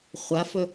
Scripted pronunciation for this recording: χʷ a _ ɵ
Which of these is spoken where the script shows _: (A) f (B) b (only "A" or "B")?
A